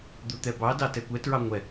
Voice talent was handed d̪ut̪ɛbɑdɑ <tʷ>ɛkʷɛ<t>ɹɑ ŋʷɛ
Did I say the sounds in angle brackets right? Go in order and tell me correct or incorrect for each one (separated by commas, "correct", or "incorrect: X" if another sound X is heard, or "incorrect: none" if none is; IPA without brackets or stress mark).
incorrect: t, correct